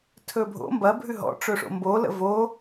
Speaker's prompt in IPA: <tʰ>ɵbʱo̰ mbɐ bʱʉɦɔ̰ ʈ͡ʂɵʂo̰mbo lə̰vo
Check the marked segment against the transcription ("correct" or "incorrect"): correct